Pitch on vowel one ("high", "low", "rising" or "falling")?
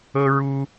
high